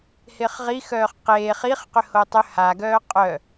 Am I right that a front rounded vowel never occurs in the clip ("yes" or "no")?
no